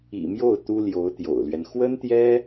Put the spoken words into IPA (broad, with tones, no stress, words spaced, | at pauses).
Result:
ḭ˨˩mjo˥˩ʊ̯ t̪u˥ljo˧˥ʊ̯t̪jo̰˨˩ʊ̯lɥɛ˦n xwə˥nt̪jɛ˥